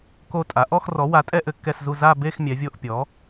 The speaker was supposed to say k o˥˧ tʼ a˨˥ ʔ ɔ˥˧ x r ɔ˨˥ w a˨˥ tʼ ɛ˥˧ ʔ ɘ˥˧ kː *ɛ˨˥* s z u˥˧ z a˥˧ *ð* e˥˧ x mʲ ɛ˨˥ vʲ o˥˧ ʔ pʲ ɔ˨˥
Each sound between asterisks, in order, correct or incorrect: incorrect, incorrect

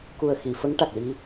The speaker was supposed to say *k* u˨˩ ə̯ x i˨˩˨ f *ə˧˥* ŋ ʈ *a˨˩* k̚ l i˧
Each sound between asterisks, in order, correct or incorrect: correct, correct, correct

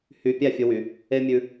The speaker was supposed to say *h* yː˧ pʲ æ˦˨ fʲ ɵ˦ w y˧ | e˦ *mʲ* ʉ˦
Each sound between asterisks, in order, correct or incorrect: correct, correct

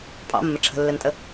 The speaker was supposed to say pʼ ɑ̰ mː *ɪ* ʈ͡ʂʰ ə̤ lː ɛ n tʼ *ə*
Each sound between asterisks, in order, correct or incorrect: incorrect, correct

